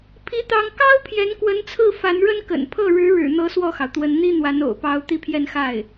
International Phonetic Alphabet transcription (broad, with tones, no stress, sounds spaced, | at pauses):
pʰ i˥ t̪ ɑ˥ ŋ k ɑ˥ ʊ̯ pʰ j ɛ˧˥ n k w ə˧˥ n t͡sʰ ɹ̩˥˩ f a˧˥ n ɻ ə˥ n k ə̰˨˩ n pʰ ɤ˥˩ ɻ ɻ̩˧˥ ɻ ɻ̩˨˩ n̪ ɤ˧˥ s w ɔ˥˩ x ɑ˩ ʊ̯ t̪ w ə˧˥ n n̪ i˥ n̪ w a˧˥ n o̰˨˩ ʊ̯ p ɑ˧˥ ʊ̯ t̪ i˥˧ pʰ j ɛ˥˧ n x a˥˩ ɪ̯